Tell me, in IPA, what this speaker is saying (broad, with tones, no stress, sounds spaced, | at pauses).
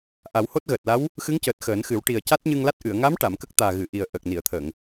ʔ a˨˩˦ w h o˦˥ t̚ ɣ əː˨˩ t̚ l a˧˥ w | x ɨ˧˥ ŋ c əː˨˩ t̚ x əː˨˩˦ n x ɨ˨˩˦ w ʈ i˨˩ ə̯ c a˦˥ t̚ ɲ ɨ˧ ŋ l a˦˥ t̚ ʔ ɨ˨˩˨ ə̯ ŋ a˧˥ m ʈ a˨˩˨ m k ə˦˥ k̚ t̪ aː˨˩ ɣ ɨ˨˩˨ ʔ i˨˩ ə̯ ʔ ə˨˩ k̚ n i˨˩˨ ə̯ t̪ʰ əː˨˩˨ ŋ